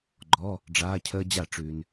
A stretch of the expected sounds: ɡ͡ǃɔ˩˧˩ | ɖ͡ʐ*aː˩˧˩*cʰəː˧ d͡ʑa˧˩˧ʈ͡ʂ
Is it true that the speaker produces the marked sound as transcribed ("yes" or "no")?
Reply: yes